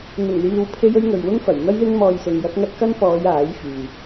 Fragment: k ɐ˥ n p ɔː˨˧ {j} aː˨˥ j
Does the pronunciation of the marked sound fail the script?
no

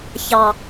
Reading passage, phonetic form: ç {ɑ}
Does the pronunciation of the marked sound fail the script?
no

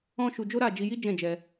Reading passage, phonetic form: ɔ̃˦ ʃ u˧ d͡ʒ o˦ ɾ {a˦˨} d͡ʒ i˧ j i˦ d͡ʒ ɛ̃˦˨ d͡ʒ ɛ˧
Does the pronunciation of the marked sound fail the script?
no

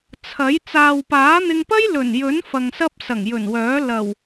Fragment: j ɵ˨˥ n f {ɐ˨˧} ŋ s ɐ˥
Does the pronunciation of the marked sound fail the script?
yes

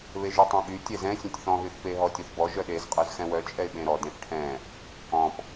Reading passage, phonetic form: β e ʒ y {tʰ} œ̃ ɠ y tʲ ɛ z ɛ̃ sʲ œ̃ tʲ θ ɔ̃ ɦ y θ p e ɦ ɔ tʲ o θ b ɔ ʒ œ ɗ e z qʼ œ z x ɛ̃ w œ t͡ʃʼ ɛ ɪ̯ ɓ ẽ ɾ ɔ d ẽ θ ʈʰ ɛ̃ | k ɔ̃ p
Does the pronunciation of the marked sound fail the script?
yes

